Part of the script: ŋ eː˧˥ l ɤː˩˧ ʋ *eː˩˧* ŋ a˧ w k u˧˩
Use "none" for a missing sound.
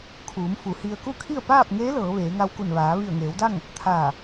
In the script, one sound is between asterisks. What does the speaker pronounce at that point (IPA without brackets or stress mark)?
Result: eː˩˧